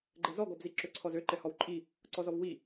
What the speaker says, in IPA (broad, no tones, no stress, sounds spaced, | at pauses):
ɡ͡ǃ ɛ z ɔ ɡ ɔ b z i ǁ ø ǀʰ ɔ z ø ǃ ɛ h ɔ w ǃʼ i | ǀ ɔ z ɔ v w i